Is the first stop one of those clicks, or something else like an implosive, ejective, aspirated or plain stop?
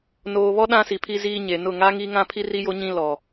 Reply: implosive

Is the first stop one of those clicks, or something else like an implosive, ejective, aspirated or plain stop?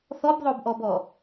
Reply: plain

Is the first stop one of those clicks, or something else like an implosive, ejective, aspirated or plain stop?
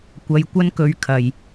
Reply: plain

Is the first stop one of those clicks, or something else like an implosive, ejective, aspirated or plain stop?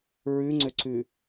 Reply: click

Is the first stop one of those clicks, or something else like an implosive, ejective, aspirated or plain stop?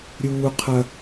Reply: aspirated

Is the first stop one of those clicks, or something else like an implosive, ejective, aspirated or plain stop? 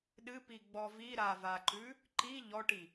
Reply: implosive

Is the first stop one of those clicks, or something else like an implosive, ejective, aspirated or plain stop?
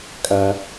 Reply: ejective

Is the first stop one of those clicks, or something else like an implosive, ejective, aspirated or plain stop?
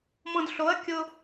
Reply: plain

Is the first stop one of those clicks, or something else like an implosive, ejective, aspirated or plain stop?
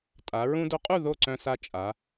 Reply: ejective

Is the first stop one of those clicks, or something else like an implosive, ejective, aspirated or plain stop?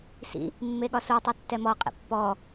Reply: implosive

